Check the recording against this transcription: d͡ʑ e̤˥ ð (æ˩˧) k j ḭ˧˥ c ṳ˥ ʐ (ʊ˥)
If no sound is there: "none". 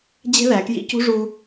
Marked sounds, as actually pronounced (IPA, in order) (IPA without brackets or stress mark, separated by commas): æ˩˧, u˥